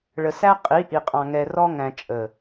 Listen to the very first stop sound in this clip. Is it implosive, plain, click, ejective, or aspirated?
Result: ejective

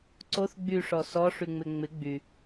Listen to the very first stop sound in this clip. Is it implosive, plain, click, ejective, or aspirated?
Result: click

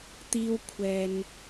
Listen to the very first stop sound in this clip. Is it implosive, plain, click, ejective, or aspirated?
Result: plain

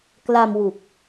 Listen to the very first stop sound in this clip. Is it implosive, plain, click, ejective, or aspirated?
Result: plain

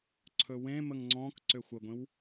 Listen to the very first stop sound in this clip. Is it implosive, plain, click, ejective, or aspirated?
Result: click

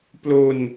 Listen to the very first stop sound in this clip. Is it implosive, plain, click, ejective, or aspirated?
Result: plain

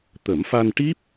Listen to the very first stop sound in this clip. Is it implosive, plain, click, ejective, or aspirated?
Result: plain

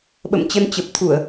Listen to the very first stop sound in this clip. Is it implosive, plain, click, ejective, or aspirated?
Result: implosive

